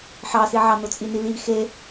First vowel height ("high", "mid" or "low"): low